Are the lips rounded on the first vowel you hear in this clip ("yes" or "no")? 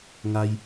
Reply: no